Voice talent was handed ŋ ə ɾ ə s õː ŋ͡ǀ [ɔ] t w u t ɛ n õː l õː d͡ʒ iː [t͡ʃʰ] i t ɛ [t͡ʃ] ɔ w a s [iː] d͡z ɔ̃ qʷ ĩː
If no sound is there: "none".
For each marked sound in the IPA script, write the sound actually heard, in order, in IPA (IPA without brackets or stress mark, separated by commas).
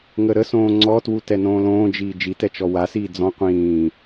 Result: ɔ, d͡ʒ, t͡ʃ, iː